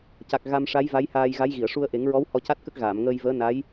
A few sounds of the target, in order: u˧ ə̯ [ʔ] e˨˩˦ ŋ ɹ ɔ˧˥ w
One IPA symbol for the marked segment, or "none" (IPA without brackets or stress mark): ʔ